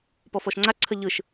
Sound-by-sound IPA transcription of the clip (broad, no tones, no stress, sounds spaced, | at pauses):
p ɔ f ɔ ʃ ŋ͡ǀ a ǀʰ ə ʎ ɯ ʃ